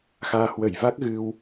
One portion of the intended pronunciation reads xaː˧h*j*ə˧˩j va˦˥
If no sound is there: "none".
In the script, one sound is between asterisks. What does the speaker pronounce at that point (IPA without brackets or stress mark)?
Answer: w